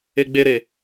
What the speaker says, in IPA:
e ɡ͡b e ɾ e

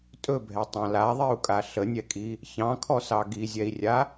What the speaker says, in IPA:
tʼ ɵ bʱ ɛ tˤ ɑ̃ l a ðˤ i u̯ kʼ a ɬ ə nʲ ɛ kʼ i | ç ɑ̃ kʰ ɔ s ɑ ɡ i zʲ ɛ i̯ rʲ a

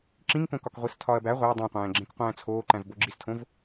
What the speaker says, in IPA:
ǁ ĩ ŋ k õ k ɒ k ʁʷ i s tʰ ɒ ɐ̯ b æ ʁʷ æ dˤ õ qʷ æ̃ː ɡ͡ǁ ẽ k qʷ æ̃ː t͡sʰ oː ǃ æ̃ v b o ɡ͡ǁ i s tʰ õ v

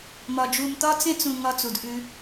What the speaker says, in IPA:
m ɒ˨ d͡ʒ u˨ m t̪ ɒ˦ t͡s ẽ˦ t͡s ũ˨ ŋ ɒ˦ t͡s u˨ d ʔ ʉ˦

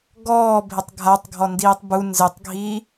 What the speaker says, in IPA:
ɡ ɔː bʱ ɪ tˤ ɡʱ a tˤ ɡʱ ɔ n d iː tˤ b u n z ɪ tˤ ɡʱ iː

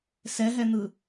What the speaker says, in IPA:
s ɛ ɦ ɛ n̪ ɯ

